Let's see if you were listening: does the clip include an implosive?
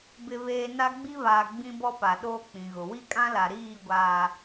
yes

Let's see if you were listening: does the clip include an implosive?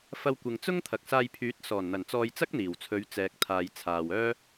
no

